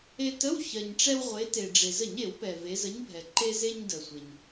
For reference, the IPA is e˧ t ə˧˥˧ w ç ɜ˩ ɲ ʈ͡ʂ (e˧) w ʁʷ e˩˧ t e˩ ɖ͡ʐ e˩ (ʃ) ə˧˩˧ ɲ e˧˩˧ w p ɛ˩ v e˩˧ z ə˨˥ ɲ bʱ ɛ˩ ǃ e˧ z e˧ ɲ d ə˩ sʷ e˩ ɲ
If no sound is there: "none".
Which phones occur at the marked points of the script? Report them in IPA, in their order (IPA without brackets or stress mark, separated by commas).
ɛ˧, z